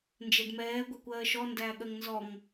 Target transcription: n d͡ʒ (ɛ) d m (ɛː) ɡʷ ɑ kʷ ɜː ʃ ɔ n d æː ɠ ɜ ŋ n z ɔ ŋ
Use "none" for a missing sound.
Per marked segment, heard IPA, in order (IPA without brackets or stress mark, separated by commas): ɛ, ɛː